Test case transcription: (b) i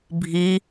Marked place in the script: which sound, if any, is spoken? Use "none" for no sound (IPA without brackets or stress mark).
bʱ